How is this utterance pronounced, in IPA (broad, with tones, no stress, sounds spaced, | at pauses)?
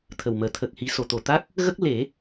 t̪ʰ ə˨˩ w m əː˨˩˨ t̪ʰ ə˨˩ k̚ h i˨˩˦ s o˨˩˨ t̪ o˨˩ t̪ a˦˥ k̚ | ɣ ə˦˥ k̚ l e˨˩˦